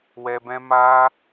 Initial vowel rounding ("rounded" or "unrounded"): unrounded